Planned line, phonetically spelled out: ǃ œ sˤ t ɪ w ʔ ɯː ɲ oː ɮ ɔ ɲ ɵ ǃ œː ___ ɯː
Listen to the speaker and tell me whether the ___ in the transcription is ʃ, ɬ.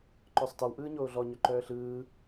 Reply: ɬ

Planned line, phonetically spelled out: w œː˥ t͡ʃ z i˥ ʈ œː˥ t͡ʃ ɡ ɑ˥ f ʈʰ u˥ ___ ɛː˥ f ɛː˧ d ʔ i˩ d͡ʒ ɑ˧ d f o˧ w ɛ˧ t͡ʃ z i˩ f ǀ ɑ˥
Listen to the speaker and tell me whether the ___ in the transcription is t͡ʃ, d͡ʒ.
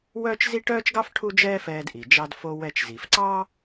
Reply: d͡ʒ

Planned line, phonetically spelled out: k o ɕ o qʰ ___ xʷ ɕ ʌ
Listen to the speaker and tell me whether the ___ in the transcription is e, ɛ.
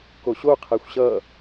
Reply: ɛ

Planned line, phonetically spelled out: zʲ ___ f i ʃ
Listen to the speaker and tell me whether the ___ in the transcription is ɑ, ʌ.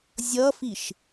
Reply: ʌ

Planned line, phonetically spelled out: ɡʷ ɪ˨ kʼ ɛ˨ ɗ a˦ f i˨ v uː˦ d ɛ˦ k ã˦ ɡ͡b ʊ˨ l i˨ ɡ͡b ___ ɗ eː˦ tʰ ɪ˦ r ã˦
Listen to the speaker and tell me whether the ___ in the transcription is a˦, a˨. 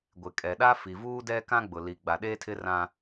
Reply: a˨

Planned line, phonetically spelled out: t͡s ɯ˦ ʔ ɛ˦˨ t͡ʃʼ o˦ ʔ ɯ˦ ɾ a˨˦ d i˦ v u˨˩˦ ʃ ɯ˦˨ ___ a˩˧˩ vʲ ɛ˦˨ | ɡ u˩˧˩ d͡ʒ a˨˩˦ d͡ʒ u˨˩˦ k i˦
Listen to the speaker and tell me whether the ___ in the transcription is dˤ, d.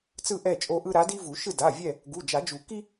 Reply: d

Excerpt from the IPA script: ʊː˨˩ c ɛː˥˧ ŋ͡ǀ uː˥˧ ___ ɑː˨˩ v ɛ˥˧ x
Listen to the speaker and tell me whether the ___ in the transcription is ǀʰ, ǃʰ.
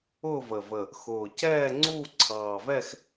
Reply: ǀʰ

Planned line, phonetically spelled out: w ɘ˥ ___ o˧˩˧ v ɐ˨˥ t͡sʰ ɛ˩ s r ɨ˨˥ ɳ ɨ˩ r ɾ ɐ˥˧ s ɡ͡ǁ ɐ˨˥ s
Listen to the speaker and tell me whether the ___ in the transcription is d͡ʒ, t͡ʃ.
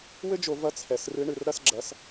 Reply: d͡ʒ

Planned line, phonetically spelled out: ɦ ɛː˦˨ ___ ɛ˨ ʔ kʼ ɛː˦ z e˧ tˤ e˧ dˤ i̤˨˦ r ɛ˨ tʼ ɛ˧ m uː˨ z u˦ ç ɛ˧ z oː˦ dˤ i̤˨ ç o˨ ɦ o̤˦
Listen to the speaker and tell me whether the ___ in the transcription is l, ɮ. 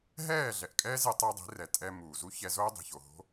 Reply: ɮ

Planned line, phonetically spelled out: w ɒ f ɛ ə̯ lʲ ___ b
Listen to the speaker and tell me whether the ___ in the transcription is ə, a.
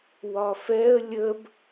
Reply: ə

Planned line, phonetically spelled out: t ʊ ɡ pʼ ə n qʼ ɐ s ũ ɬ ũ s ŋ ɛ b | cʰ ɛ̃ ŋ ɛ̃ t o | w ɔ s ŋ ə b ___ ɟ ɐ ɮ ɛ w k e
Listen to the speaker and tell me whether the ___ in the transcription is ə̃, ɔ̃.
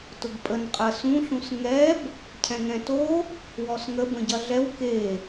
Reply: ə̃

